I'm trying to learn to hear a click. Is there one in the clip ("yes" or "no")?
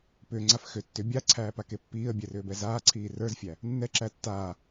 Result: yes